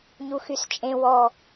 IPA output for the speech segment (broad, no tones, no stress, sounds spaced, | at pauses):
ɲ u x y s t͡ʃʼ ẽ w ɔ